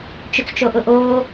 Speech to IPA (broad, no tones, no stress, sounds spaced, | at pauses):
t͡ʃ ʏ t͡s t͡ʃ o ʔ ʊ ʔ oː